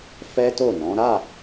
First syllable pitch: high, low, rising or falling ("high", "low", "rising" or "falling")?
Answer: high